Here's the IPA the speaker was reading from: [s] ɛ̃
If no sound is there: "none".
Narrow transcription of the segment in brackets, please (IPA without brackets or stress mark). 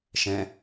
ʃ